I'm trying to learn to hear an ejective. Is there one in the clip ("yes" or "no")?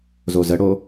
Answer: no